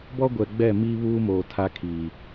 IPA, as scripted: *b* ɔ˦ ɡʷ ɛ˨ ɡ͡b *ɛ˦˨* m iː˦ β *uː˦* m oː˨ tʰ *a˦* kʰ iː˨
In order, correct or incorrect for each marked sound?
correct, correct, correct, correct

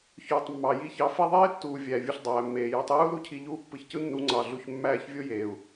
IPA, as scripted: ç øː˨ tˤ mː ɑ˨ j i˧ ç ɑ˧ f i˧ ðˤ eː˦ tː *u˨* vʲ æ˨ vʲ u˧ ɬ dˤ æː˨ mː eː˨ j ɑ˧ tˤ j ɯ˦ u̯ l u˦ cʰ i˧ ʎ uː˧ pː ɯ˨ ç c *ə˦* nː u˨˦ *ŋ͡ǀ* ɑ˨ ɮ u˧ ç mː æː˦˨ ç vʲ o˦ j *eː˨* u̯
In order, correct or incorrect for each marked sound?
incorrect: uː˨, incorrect: ɯ˦, correct, correct

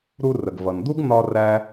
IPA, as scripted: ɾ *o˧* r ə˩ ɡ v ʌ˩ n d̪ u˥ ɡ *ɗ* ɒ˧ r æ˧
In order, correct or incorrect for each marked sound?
incorrect: u˧, incorrect: n̪

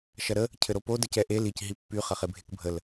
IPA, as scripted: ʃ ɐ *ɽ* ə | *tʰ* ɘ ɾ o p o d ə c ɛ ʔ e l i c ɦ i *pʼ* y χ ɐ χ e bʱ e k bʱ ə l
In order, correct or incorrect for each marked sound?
incorrect: ɾ, incorrect: cʰ, incorrect: pː

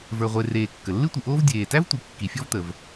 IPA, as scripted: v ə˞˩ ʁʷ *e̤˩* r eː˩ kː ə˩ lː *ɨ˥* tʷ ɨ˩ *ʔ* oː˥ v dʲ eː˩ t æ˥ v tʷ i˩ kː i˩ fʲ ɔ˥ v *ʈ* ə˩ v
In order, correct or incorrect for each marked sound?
incorrect: e˩, correct, correct, incorrect: t̪

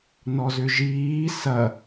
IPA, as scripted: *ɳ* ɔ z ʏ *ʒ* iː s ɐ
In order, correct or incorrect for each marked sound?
incorrect: n, correct

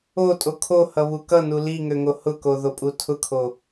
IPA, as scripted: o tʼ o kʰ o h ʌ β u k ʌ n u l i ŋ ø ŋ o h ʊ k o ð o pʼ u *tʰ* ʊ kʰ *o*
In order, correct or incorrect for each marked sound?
correct, correct

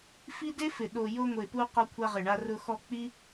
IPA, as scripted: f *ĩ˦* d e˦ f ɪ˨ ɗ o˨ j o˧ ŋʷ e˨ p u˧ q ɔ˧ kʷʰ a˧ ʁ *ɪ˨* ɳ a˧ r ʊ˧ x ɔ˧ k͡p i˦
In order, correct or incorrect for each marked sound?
incorrect: i˦, correct

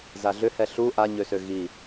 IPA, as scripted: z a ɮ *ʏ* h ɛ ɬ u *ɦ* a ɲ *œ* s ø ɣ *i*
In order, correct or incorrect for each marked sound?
correct, incorrect: ʔ, incorrect: ø, correct

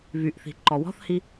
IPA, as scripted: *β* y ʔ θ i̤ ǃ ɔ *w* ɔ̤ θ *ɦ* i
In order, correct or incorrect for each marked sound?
correct, correct, incorrect: h

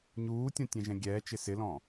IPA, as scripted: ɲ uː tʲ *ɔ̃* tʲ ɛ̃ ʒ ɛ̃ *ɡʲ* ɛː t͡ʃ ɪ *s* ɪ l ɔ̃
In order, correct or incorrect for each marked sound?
correct, correct, correct

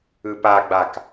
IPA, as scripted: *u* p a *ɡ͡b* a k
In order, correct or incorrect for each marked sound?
incorrect: ɯ, correct

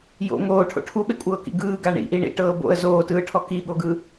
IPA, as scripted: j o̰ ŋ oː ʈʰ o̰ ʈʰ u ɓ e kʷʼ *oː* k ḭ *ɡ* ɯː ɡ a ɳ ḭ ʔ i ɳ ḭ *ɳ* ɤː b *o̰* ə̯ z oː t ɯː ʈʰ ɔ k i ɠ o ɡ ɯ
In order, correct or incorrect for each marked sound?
incorrect: ɤː, correct, incorrect: ʈ, correct

